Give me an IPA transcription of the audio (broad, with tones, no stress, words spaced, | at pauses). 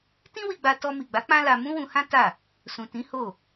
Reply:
tĩ˦wi˧ɡ͡ba˧ tɔ˧mi˨ɡ͡ba˨˦ k͡pã˦la˧ mũ˦wũ˧hã˦ ta˦˨ | sũ˨tĩ˨˦ ho˦˨